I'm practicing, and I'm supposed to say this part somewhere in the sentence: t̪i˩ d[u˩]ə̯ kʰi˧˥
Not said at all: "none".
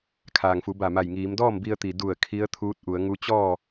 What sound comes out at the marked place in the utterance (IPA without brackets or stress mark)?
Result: u˧˩